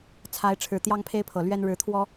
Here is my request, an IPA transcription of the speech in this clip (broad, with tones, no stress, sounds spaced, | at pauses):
t͡sʰ a˨˦ ɪ̯ ʈ͡ʂʰ ɻ̩˨˩ t̪ j ɑ˦ ŋ pʰ e˦ ɪ̯ pʰ ɤ˨˩ l ɥ ɛ˦ n ɻ ɻ̩˨˦ t̪ʰ w ɔ˦